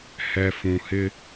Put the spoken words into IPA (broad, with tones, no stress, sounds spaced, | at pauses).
h ɛ˨ f ũ˨ h ɪ˦